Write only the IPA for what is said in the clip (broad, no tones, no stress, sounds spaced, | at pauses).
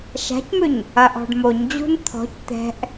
ʃ a̤ c m ʏ ɲ | ɐ ʔ ɔ̤ ɖ m o ɲ d͡ʑ ṳ n t̪ʰ ɔ̤ c t̪ ɛ̤ ʔ